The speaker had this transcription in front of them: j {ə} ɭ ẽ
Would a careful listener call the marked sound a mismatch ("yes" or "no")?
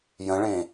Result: yes